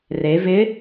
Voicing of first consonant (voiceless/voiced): voiced